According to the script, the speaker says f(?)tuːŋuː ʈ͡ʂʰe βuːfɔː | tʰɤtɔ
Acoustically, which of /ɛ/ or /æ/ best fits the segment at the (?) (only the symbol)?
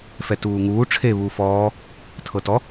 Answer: ɛ